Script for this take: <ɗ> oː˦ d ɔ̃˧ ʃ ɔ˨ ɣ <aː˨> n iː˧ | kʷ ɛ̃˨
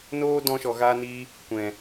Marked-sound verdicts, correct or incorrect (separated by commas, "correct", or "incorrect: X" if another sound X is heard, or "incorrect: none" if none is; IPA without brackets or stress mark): incorrect: n, incorrect: aː˧